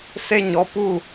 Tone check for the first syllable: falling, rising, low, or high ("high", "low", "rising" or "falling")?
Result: falling